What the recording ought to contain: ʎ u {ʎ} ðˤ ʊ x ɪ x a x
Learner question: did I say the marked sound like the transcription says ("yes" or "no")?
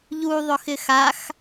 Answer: no